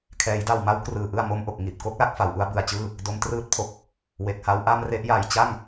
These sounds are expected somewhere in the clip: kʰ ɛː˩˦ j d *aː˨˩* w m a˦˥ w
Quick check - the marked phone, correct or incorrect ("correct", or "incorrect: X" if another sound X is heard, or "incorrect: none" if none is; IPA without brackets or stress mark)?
incorrect: a˨˩